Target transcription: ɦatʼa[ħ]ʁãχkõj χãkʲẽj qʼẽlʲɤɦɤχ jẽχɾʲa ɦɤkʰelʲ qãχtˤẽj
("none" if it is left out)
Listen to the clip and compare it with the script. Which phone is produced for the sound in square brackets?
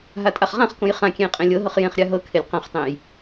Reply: χ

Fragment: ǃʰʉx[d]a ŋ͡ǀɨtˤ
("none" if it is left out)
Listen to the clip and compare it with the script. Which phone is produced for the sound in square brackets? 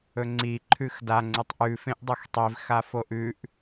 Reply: d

